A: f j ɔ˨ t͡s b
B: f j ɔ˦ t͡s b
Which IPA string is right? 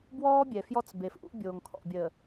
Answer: B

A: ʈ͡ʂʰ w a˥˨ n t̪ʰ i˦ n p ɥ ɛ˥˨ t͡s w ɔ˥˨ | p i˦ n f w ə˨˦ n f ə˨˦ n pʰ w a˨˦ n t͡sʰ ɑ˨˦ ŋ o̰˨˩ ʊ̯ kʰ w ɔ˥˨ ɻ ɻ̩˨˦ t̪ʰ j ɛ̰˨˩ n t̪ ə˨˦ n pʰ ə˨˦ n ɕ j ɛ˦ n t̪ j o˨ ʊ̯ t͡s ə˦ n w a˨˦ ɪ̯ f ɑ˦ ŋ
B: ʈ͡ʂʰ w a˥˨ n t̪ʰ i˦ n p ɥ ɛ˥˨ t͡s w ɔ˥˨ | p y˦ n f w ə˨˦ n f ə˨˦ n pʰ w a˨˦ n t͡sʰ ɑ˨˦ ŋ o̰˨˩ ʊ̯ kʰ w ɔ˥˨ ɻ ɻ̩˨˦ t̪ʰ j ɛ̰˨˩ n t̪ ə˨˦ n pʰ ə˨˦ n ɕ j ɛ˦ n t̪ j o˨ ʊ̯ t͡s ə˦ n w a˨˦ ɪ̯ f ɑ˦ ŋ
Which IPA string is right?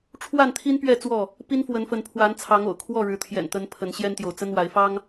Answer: A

